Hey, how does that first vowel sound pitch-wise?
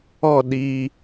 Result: falling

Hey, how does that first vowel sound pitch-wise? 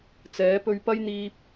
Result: rising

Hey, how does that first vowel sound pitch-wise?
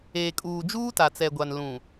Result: low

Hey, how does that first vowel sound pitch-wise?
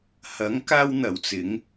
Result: rising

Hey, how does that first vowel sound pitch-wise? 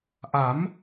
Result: rising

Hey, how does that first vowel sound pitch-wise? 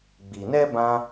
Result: low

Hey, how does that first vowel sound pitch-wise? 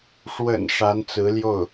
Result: low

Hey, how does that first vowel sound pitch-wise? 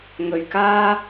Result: low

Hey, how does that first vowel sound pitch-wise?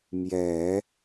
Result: low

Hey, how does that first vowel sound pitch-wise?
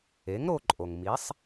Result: rising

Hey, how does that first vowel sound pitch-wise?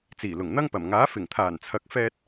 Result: low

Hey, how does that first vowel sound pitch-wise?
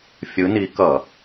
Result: rising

